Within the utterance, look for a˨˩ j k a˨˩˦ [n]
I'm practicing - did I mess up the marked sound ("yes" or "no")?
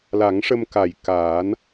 no